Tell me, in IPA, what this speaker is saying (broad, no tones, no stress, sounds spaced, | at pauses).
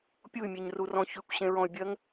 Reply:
pʲ u y̯ mʲ e ɲ r u r ɔ̃ ç ʉ kʷ ɕ ẽ ɹ ɔ̃ y̯ bʲ ɜ ŋ